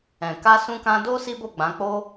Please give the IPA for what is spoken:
ɛ̃˨ k a˧ s ũ˧ k ã˧ d o˦ s i˦ b o˦˨ ɡ͡b ã˨˦ k͡p o˦

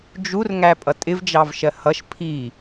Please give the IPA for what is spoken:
d͡ʒ u r ŋ æ pʼ ʌ tʼ ɪ v d͡ʒ ɑ v ʃ ɜ h ʌ ʃ pʰ i

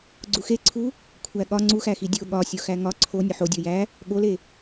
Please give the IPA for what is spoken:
ɡ͡ǀ u x e ǀʰ u | kʷʰ æ ɠ ɒ ŋ͡ǀ u x æ x i dʲ o ɠ ɒ sʲ o x æ ŋ ɒ ǀʰ o nʲ o ħ o dʲ o j æ | ɠ o l e

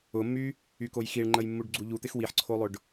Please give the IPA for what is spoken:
ʊ mː y | y k o j x i ɭ ŋ͡ǃ ə j mː u ɖ ɡ͡ǀ u ʎ u t̪ ɪ x w i ħ ǀʰ o lˠ ʊ ɖ

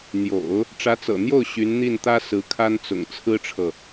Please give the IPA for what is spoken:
n̪ j o̰˨˩˦ ʊ̯ | ʈ͡ʂ ä˧˥ t͡s ɤ̰˨˩ n̪ j o˥˩ ʊ̯ ɕ y˧˥ n n̪ i˥˩ n t̪ ä˥ s ɹ̩˧˥ kʰ a˥ n t͡s ʊ̰˨˩ ŋ t͡sʰ ɹ̩˥ ʈ͡ʂʰ ɤ˨

